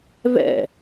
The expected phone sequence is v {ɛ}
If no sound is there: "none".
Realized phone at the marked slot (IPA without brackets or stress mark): ɛ̰